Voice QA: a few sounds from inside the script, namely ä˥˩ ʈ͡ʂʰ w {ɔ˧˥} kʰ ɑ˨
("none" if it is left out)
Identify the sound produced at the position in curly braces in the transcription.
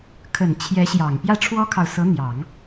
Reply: ɔ˥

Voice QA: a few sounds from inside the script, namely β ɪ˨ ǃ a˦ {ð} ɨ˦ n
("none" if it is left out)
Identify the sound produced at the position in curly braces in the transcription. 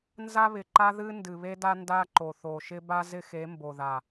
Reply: ð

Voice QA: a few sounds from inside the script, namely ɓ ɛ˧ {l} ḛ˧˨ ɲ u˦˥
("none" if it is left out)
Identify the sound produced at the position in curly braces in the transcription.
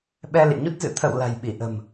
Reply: l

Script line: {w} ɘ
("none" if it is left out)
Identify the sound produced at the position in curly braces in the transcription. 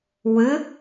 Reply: w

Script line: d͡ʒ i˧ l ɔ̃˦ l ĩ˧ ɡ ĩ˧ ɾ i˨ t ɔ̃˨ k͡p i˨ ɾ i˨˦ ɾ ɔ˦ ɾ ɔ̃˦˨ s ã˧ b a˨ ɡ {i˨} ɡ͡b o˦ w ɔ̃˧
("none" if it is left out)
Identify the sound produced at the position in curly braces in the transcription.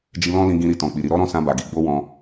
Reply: i˨˦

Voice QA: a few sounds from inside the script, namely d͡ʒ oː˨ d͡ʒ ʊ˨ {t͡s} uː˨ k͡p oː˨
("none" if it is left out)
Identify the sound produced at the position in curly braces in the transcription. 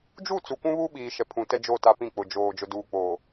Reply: d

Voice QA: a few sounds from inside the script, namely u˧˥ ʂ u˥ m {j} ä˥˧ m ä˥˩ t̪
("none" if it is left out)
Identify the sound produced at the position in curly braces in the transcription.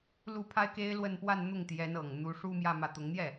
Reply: j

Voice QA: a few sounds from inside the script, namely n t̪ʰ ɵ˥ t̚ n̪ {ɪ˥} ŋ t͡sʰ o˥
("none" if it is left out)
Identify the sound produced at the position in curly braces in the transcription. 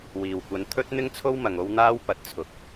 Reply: ɪ˥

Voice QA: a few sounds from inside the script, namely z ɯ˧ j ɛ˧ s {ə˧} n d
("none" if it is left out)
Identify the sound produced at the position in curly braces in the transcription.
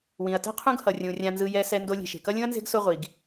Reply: ɛ˧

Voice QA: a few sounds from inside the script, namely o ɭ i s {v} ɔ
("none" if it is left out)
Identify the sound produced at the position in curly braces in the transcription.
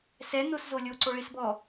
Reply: b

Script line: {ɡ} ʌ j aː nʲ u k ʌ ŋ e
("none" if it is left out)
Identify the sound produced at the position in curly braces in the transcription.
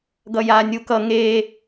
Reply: ɡ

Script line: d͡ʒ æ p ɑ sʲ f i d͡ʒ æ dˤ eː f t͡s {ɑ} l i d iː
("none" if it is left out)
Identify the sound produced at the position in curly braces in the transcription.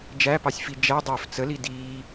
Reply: ə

